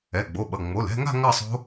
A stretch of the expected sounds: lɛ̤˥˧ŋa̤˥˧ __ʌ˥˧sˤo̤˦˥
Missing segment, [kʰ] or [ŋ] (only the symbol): ŋ